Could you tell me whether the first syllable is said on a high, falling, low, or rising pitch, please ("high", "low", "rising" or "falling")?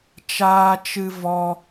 high